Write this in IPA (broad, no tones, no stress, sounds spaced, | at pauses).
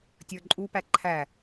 tʲ ə˞ ǃʼ u p æ ǃʰ æ